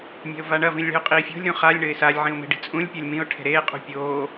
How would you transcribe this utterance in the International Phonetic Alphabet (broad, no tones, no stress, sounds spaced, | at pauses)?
mʲ a̤ ʊ̯ v a ɳ ɐ v ĩ lʲ ɭ i̤ ʊ̯ qʼ iː fʲ o̤ lʲ ɾ ũ χ a lʲ ɳ ɘ ɪ̯ s a lʲ ʕ ĩ ʊ̯ m e̤ ɖ i̤ t͡sʼ ũ lʲ pʲ o lʲ m ĩ ʊ̯ ʈʰ e̤ ɾ eː qʼ ṳ pʲ oː